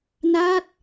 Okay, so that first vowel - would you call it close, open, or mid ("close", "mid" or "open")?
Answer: open